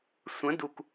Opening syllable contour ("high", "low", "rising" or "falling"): rising